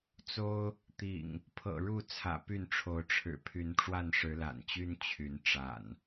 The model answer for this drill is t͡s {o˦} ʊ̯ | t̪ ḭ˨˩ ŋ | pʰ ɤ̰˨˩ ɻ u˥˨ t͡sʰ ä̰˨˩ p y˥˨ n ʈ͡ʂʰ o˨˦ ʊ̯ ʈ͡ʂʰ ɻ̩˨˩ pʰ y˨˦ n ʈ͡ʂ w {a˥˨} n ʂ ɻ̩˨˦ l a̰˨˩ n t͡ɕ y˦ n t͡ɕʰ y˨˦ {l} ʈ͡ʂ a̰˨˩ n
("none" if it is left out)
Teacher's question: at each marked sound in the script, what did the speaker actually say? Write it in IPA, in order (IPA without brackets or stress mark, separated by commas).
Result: o˦, a˥˨, n